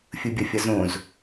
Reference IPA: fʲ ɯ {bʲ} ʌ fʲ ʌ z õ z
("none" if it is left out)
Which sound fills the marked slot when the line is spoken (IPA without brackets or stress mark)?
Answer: bʲ